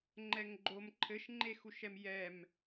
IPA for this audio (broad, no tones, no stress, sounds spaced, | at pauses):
ŋ͡ǃ ɛ ŋ ɡ͡ǃ o m ǃʰ ɘ ʃ ŋ͡ǃ e x u ʃ ɛ m j ɛ m